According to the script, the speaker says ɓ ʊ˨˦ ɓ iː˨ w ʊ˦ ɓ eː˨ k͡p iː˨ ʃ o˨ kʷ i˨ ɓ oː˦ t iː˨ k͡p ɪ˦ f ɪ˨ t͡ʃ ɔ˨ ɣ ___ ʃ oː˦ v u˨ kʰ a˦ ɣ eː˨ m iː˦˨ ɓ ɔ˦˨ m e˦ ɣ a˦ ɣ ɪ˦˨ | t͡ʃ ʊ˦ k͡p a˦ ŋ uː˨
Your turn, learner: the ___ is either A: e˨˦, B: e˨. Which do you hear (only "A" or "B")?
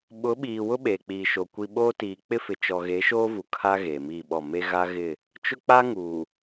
A